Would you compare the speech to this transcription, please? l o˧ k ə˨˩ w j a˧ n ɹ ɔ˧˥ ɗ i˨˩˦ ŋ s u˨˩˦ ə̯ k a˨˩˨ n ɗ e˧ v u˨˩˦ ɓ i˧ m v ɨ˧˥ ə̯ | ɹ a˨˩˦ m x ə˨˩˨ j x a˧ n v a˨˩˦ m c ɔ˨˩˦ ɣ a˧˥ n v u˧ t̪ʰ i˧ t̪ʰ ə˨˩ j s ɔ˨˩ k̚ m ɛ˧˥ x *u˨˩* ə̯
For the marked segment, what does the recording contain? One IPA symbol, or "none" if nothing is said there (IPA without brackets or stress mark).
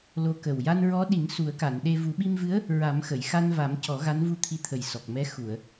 u˨˩˨